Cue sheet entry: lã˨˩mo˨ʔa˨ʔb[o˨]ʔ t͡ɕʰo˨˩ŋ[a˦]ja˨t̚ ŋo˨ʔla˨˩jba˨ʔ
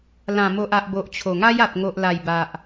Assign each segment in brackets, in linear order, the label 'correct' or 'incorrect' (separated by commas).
correct, correct